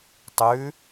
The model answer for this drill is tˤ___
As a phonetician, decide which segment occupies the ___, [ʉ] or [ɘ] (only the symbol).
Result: ʉ